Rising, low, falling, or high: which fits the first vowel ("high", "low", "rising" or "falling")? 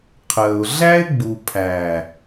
low